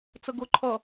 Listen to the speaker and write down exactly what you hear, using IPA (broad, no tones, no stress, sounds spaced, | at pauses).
t͡s ə ɡ ʊ ǃʰ ʌ